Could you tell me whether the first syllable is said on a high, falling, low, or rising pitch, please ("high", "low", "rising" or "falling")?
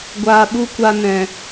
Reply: low